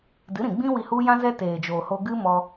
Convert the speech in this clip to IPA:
dɨ˨˦ɾĩ˨ɡ͡bĩ˦ wi˧hu˦jã˦zɛ˦ teː˨d͡ʒoː˨ho˧ɡɨ˦ mɔ˧

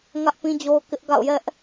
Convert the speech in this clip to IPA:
ŋä˦ʔpĩ˦d͡ʑo˦ʊ̯kɪ˦ʔ ɡa̰˦˨ʊ̯jɛ˦ʔ

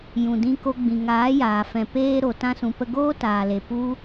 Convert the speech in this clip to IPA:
jũ˨dĩ˧ko˧ ɡ͡bĩ˨ŋaː˨˦jaː˨fɛ̃˨ peː˧ ɾo˨tã˧sũ˨pə˧ ɡoː˦taː˨le˨ pu˦

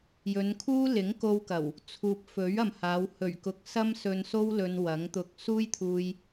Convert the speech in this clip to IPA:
jɵ˨˧nkʰuː˥ lɪ˨˥ŋko˧wkɐ˨˩w | t͡sʰuː˨p̚fɵ˨˥ɥ ɐ˨mhaː˨˧w hɵ˨˩ɥkʊ˨k̚ sɐ˥msɵ˧nso˥w lɵ˧nwɐ˨˥ŋt̪ʊ˧k̚ suː˥jt̪ʰuː˧j

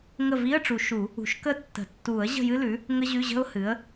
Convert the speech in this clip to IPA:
ŋə˥˨ vi˧˥˧ə̯ʈ͡ʂu˨˩˦ ʃu˨˩˦ | ṳ˨˩˦ʃkə˥˨tːə̤˨˩˦ tːu˨˩˦ə̯ ʑə̤˥˨jɨ˥lʉ˩˥ | ŋə˥ʑʉ˧˥˧ʑə̤˥ʊ̯ hɨ˩˥ə̯

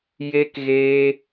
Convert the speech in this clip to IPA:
je˦k ɣeː˦

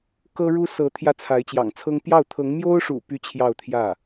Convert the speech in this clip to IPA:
kɤ˥ɻu˥ sɤ˧˥ t̪ʰjä˥˩t͡sʰa˧˥ɪ̯t͡ɕjɑ̰˨˩ŋt͡sʰɤ˥ŋ pjɑ˥˩ʊ̯t̪ʰɤ˧˥ŋ mjo˥ʊ̯ʂṵ˨˩ py˥t͡ɕʰjɑ˥˧ʊ̯t̪ʰjä˥˩

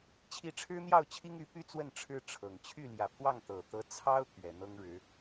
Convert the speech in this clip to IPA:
t͡ɕʰi˧˥ʈ͡ʂʰɻ̩˥n̪jɑ˥˩ʊ̯t͡ɕʰi˥ŋ y˧˥py˥t͡swə˥˩n ʈ͡ʂʰɻ̩˥ʈ͡ʂʰɤ˨˩ŋ t͡ɕʰy˥˩ljä˨˩pʰwɑ˥˩ŋ t̪ɤ˨˩t̪ɤ˧˥ t͡sʰɑ˥ʊ̯ t̪ɥɛ˨˩ n̪ɤ˥ŋɻɻ̩˧˥

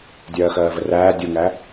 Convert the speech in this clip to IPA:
dʲɜːxɜːvəræː dʲuŋæ

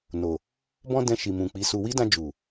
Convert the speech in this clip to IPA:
no˨ | bɔ̃˦dɛ̃˧ ʃi˨mũ˨k͡pi˨˦su˧ wi˦dã˧d͡ʒu˨

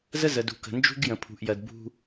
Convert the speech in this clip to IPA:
zə˦zə˨dṳ˨kə̤˨ nd͡ʒṳ˦ɡjə̃˨pʰṳ˨ʔjɜ˨d bṳ˦

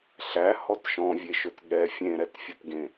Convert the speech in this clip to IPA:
ɬæhɔt ʃɔ̃vʲeʃɵt ɠɛ fʲẽɾɛtfʲɵtɡẽ

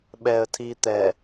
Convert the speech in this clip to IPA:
ɓɛə̯tʰiː t̪ɛ

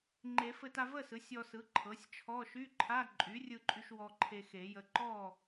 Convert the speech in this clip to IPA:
ŋ͡ǃe˨˩˦fɘ˧ta˧ və˥˨sɯ˩˥sʲ ɔ˧sɯ˩˥ ǃʰɤ˩˥sʲt͡ʃʰɔ˧˥˧ ʃy˧˥˧ǃʰa˧˥˧ ǃʼy˩˥rʲɯ˧ǃʼy˧ʃ wɔ˧ǃʰe˧xe˨˩˦jə˧ ǃɔ˥˨

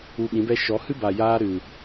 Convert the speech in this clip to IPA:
u˧ɓĩ˨˦bɛ˦ ʃɔ˨˦ hɨ˦ba˨jaː˧ ɾɨ˨

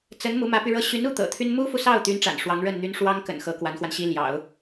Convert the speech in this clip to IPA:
t͡sə˧˥n mu˧˥mä˧˥py˧ɻɤ˥ ɕy˧˥nu˥˩ t̪ɤ̰˨˩t̪ʰy˥n mu˥fu˨sɑ˥˩ʊ̯ t̪y˧˥n ʈ͡ʂa̰˨˩nʂwɑ˧˥ŋɻə˥˩nn̪y˥n ʂwɑ˥ŋkə̰˨˩n xɤ˧˥kwa˧˥nxwa˧nɕi˥ ljɑ̰˨˩˦ʊ̯

